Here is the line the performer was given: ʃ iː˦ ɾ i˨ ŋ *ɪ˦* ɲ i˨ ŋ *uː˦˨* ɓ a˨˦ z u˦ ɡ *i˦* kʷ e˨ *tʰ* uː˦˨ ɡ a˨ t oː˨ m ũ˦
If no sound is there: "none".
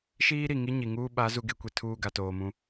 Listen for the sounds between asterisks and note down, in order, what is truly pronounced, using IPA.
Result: i˦, uː˦, e˦, tʰ

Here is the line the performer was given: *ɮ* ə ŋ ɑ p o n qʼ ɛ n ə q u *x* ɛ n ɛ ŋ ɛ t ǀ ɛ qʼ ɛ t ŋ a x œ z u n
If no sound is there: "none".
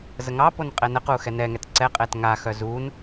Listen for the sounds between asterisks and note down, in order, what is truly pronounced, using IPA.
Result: z, x

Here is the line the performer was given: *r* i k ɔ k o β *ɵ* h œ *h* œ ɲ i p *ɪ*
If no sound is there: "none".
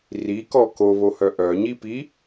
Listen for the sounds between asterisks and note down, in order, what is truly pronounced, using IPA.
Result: r, o, ʔ, i

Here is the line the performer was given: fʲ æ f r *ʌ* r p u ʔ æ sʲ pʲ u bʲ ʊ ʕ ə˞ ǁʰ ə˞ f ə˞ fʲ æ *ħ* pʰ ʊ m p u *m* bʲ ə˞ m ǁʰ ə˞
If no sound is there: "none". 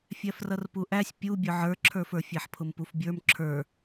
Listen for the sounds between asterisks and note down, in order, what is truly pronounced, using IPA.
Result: ʌ, ħ, f

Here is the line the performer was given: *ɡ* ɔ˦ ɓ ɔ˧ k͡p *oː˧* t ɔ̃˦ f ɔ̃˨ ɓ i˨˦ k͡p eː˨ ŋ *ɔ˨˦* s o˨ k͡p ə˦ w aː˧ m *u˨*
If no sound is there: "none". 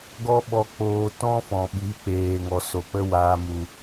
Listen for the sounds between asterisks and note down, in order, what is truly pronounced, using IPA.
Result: ɡ, oː˧, ɔ˨, u˨

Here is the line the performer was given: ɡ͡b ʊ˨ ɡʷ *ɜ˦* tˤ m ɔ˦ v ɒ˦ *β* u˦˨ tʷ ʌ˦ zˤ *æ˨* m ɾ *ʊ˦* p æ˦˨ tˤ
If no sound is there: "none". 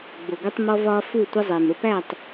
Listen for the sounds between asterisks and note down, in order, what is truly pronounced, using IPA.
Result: ɛ˦, f, ɛ˨, ʊ˦

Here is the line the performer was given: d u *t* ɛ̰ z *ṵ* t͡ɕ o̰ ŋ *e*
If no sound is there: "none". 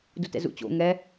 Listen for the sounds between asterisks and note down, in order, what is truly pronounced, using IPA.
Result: t, ṵ, ɛ

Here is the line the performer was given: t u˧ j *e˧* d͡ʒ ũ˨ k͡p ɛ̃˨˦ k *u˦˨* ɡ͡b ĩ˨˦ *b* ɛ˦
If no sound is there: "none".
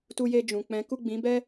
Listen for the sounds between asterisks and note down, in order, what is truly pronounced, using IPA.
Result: e˧, u˦˨, b

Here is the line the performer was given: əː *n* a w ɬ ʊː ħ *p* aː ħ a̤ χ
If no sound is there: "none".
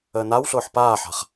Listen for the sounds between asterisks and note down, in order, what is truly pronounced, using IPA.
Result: n, p

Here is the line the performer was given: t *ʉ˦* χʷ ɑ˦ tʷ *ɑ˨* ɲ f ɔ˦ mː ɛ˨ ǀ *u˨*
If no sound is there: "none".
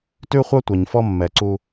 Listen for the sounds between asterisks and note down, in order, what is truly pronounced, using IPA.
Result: ʉ˦, ɑ˨, u˦

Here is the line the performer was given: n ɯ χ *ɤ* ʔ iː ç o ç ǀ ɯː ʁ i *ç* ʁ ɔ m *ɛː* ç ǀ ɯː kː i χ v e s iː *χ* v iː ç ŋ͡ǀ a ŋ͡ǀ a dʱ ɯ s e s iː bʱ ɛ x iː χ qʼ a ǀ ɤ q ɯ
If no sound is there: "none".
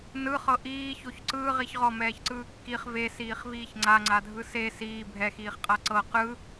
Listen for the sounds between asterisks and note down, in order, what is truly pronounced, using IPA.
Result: ɤ, ç, ɛː, χ

